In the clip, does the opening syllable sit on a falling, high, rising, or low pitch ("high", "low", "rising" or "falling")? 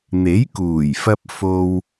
rising